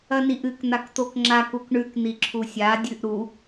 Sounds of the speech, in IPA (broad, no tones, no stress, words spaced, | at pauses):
ɐniʔɨk n̪akt̪okŋ͡ǁak ukɳʉk n̪iǁʰusʲa dʲʉʔɾu